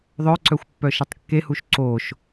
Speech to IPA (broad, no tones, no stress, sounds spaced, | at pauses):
ðˤ œ ǀ œ xʷ pː œ ʃ ɛ tˤ kː e h u ʃ ǀ o ʃ